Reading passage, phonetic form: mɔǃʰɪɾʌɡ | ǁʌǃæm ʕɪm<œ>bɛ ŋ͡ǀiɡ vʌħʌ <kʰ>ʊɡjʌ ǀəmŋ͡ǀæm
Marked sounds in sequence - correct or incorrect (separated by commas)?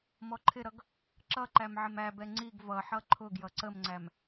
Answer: incorrect, incorrect